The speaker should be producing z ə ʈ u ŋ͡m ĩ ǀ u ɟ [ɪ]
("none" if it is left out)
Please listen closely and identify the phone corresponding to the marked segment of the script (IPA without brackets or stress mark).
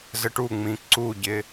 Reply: ɪ